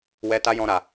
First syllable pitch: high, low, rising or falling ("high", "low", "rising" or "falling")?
high